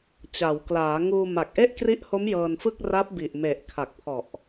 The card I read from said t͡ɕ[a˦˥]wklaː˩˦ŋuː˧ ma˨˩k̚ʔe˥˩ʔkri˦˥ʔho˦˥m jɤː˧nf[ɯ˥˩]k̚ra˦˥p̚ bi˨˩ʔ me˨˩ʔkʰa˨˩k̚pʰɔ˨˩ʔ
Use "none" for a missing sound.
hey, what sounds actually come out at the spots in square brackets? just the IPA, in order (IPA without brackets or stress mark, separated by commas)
a˩˦, ɯ˥˩